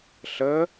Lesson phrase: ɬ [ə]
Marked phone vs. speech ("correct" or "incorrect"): correct